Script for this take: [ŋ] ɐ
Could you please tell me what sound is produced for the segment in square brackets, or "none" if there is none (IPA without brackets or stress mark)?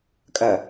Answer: kʼ